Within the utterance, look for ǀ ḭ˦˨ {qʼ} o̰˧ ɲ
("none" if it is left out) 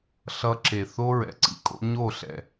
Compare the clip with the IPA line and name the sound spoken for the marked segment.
kʼ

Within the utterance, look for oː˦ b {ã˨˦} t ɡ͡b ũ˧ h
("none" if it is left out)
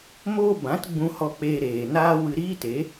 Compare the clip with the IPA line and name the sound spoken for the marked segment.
ã˨˦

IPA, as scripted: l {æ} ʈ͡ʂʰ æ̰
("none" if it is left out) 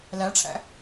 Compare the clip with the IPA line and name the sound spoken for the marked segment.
æ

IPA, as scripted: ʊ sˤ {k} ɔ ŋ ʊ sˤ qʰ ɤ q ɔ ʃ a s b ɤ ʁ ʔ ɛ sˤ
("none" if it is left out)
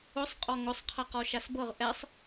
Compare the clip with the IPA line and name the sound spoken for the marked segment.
qʼ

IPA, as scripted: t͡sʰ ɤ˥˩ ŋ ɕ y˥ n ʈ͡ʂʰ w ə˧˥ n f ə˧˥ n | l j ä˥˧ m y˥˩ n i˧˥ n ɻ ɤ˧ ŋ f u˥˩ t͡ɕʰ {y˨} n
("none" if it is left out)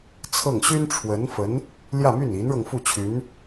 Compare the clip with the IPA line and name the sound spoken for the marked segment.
y˧˥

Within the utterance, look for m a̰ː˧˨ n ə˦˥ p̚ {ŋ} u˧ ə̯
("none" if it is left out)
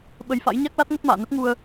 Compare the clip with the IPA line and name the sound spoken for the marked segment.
ŋ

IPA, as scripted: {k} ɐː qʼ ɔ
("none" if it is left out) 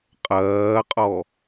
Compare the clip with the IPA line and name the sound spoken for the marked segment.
qʼ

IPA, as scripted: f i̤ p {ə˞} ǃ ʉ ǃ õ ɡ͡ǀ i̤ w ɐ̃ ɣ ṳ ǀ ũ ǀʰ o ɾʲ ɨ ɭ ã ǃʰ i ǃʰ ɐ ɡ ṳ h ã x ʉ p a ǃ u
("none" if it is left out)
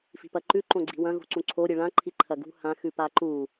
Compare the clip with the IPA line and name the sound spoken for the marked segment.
ɐ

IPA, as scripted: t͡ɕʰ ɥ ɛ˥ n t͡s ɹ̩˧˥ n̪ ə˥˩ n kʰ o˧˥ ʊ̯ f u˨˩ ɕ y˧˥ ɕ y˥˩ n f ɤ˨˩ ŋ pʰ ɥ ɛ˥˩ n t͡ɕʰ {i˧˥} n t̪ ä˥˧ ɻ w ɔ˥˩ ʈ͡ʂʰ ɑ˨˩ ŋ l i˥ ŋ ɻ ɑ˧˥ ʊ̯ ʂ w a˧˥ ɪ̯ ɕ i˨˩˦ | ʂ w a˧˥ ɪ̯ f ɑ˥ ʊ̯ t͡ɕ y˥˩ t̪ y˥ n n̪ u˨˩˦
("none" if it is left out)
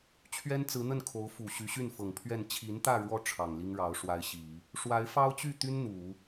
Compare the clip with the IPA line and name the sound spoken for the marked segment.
i˧˥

